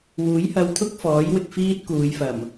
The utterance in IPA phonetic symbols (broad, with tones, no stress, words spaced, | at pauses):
wuː˨˥jhɐ˧wt̪ʰʊ˥k̚ fɔː˨˥jwɪ˨k̚ fiː˥t̚ kuː˨˧jfɐ˨˩m